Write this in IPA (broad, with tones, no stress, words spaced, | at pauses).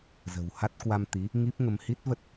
zə̤˨˩wha˦˥t̚ kwa˧mt̪i˨˦ | ŋi˦˥p̚ŋə˧m hi˦˥t̚və˦˥t̚